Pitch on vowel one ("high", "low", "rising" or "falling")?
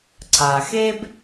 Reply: low